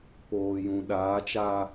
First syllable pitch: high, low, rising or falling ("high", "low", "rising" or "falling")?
low